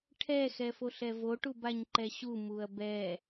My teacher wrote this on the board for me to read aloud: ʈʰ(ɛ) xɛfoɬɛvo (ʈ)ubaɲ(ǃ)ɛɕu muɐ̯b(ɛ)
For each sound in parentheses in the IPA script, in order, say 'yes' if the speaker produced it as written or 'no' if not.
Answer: yes, yes, yes, yes

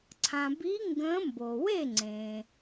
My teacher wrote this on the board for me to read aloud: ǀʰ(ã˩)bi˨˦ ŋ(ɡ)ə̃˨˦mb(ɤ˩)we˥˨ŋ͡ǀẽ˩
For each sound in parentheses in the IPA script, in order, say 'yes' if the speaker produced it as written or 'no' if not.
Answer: yes, yes, no

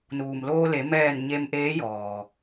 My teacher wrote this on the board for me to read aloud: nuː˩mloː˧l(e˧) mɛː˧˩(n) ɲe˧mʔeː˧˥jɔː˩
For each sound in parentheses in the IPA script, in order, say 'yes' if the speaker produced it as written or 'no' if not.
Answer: no, yes

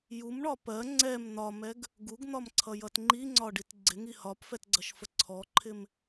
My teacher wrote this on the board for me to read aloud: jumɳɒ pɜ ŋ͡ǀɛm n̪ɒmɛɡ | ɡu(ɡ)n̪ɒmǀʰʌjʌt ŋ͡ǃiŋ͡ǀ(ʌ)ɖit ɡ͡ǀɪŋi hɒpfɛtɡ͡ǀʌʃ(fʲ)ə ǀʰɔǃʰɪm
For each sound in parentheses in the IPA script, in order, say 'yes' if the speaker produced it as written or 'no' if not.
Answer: yes, no, no

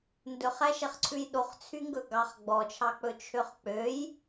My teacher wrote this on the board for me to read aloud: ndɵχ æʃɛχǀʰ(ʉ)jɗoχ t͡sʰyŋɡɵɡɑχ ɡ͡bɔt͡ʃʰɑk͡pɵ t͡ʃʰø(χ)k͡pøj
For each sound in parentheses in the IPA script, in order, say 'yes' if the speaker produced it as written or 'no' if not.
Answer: yes, yes

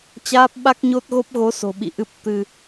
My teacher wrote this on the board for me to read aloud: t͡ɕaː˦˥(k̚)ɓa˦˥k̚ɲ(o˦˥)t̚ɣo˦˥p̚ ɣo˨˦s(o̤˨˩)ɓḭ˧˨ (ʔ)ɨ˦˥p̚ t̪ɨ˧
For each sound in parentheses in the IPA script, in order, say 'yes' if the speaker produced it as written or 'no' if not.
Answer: no, yes, yes, yes

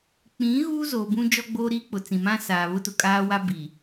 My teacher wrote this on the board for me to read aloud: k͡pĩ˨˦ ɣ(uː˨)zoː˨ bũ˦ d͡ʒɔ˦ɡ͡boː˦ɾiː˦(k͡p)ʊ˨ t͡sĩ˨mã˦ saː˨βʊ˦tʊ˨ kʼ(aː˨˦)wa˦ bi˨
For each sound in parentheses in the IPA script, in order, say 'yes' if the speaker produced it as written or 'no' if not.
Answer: no, yes, no

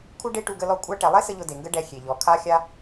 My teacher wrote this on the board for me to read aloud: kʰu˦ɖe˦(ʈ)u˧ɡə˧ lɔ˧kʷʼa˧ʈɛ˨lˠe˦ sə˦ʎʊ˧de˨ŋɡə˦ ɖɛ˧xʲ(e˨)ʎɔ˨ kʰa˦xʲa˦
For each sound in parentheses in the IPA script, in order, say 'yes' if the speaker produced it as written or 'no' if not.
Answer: yes, yes

